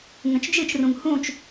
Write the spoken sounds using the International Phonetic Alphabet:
ŋ ə̃ t͡ʃ d͡ʒ ɨ t͡ʃ r ũ ŋ h ũ t͡ʃ

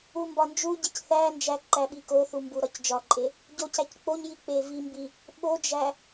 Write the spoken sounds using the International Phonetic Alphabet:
u m b ɒ n d͡ʒ u ɟ i c θ æ n d͡ʒ æ ǃ æ ɓ i k o θ u m b u ɾ ɒ c d͡ʒ ɒ ǃʼ e | ɟ o c æ c k͡p o ɲ j i k͡p e v i m b i | ɓ o d͡ʒ æ

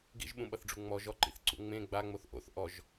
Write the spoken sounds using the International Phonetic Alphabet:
ɡ ḭ ʒ ɓ ũ ɓ ʌ θ ɖ͡ʐ u ŋ͡m ɔ ʒ ɔ ǃ ḭ θ ǀ ṵ ŋ͡m ẽ ɡ͡b a ŋ͡m o θ ʔ o̰ θ ʔ ɔ ʒ

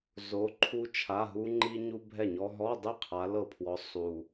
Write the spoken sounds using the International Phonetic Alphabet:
z o˧˥ ǃʰ u˥ t͡ʃʰ a˧˥˧ ɦ u˥ ŋ͡ǃ i˥ ɲ u˥ bʱ ɛ˥˨ ɲ ɔ˥ ɦ ɔ˧˥˧ dˤ i˥˨ qʰ a˧˥ l ɤ˥˨ pʰ w ɔ˧˥ sˤ u˨

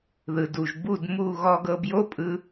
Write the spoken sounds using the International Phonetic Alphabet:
ð ɯ˩ d u˩ ʒ b u˥˩ d m u˥˩ ɣ ɔ˧ ɡ ɤ˧ b j o˥ pʼ ɯ˧

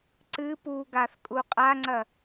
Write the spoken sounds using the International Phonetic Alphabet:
ǀ ɨ p u ɡ a θ kʼ u qʼ a ŋ͡ǀ ɐ

